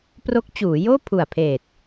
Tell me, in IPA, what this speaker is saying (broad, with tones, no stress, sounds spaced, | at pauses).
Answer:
p r o˦˥ k̚ t͡ɕ uː˩˦ j oː˥˩ pʰ u˨˩ a̯ pʰ eː˨˩ t̚